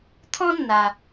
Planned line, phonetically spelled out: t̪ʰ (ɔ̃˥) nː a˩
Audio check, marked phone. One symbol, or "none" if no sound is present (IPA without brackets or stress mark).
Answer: ɔ̃˥